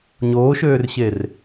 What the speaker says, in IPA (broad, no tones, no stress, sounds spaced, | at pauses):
ɲ oː ʃ øː r ɕ e r